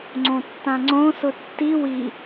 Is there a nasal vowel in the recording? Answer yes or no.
yes